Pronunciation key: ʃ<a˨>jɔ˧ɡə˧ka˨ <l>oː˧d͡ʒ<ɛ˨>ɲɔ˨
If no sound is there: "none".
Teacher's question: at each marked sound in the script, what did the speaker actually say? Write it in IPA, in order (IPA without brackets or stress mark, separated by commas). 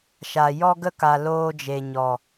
a˨, l, e˨